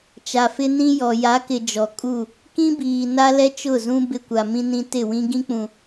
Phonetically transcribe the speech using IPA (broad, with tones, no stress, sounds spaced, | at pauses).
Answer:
t͡ʃ a˨ f ɪ˦ n ĩ˦ j ɔ˨ j a˨˦ k ɪ˨ d͡ʒ ɔ˨ kʼ u˦˨ | k ĩ˦ b iː˨ n a˦ l ɛ˦ t͡ʃ ʊ˦˨ z ũ˦ b ɪ˦ kʷ a˨ m ĩ˦ n ĩ˦ t ɪ˦˨ w ĩ˦ ɡ ĩ˦ k͡p ũ˨